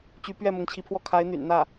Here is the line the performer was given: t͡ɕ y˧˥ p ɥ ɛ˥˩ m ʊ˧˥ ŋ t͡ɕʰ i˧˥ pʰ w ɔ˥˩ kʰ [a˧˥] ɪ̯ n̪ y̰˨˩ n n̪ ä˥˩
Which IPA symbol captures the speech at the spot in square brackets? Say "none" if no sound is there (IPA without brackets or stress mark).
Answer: a˧˥